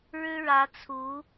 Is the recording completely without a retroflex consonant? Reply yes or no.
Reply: no